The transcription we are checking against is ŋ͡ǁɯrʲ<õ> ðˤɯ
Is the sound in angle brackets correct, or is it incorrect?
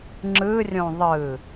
correct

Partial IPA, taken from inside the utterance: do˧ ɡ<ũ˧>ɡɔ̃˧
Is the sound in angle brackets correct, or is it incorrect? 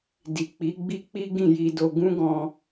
incorrect: ũ˦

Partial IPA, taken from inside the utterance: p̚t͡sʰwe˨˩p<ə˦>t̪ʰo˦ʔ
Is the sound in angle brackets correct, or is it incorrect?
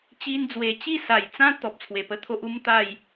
correct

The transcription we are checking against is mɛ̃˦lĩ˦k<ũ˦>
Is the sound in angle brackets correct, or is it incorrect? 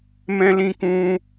correct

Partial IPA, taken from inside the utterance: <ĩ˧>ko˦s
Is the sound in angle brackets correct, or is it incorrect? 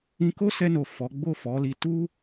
correct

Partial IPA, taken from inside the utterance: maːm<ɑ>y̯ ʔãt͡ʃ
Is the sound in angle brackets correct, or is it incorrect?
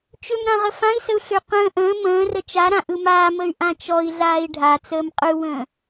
incorrect: ə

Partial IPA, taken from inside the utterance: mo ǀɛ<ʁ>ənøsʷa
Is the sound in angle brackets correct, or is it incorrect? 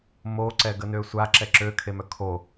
incorrect: ɡ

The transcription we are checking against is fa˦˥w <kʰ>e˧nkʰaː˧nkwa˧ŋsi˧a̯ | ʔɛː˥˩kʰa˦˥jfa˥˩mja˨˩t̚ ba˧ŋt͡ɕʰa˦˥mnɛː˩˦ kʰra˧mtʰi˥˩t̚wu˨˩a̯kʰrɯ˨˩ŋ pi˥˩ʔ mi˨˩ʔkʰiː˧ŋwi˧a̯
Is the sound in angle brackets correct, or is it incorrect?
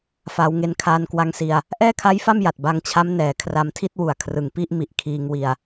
incorrect: ŋ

